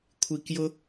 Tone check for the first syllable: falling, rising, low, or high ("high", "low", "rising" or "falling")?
low